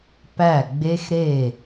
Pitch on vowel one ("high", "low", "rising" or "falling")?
falling